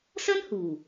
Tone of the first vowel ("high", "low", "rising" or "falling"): high